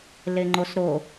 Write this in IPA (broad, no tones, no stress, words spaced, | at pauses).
leŋ͡ǃosɾo